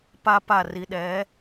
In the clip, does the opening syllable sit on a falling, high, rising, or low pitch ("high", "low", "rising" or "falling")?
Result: high